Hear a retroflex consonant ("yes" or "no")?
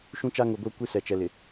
no